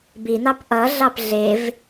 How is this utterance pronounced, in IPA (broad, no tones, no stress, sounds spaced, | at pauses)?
b i n̪ ɑ p ʔ ʌ ɮ ɑ p ɮ e v